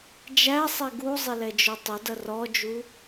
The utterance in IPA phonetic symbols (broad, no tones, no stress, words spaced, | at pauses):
d͡ʒæsˤɛ ɡuzˤɪlɛd͡ʒʊ tˤʊdʌ rɔd͡ʒu